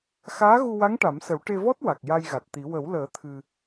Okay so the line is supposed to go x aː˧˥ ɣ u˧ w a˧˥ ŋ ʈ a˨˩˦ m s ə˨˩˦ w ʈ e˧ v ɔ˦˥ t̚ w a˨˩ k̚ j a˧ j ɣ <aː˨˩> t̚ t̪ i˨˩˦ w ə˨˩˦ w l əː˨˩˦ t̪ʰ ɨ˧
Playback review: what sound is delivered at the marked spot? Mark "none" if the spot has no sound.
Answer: a˨˩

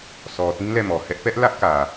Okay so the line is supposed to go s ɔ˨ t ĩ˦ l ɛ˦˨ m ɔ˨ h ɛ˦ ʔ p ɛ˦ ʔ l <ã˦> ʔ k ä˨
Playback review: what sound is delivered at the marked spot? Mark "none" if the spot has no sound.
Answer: ä˦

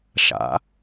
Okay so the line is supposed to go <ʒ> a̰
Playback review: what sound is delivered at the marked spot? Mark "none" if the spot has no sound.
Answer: ʃ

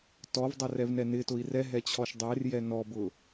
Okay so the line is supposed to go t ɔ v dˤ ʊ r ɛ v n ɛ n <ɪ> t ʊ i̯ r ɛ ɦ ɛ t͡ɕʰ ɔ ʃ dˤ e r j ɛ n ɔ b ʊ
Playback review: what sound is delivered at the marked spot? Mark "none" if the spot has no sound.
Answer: ɪ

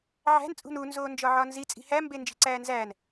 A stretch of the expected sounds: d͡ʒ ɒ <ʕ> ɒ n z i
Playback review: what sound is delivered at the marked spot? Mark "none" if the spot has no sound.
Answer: ʕ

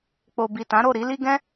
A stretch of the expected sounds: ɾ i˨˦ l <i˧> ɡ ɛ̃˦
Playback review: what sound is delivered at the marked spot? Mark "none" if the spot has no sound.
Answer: i˦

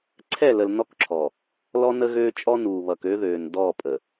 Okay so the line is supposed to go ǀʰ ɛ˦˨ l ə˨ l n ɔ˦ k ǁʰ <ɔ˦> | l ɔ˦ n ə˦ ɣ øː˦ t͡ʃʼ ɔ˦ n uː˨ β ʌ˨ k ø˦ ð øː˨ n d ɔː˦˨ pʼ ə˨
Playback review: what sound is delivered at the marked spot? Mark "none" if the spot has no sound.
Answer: ɔ˨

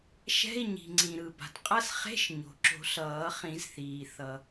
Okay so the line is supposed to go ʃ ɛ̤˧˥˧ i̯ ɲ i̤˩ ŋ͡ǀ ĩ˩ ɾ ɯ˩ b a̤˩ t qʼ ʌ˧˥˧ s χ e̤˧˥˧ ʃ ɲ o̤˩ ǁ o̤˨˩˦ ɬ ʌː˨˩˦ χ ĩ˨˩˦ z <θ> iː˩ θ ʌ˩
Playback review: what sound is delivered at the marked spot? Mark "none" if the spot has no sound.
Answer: θ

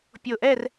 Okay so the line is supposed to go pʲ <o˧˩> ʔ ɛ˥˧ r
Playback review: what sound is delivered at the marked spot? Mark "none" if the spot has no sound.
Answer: o˧˩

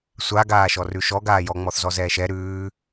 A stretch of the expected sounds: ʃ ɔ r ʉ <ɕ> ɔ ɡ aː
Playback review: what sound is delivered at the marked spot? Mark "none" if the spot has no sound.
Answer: ʃ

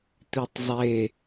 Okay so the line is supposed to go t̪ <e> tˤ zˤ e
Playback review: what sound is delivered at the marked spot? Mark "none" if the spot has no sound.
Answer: i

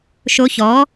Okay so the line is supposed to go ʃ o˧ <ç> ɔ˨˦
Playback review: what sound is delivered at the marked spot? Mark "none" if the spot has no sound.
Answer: ç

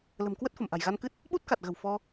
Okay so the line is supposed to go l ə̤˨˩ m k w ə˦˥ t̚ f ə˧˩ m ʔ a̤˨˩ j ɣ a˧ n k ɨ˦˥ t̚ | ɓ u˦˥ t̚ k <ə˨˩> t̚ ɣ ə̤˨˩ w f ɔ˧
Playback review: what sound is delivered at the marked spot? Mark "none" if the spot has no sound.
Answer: a˨˩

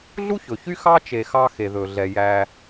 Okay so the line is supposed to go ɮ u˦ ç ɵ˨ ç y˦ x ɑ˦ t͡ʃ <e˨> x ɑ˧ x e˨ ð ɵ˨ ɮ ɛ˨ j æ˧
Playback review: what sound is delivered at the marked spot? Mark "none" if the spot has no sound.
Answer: e˨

